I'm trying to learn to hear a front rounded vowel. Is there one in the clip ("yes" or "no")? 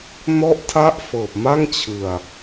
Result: no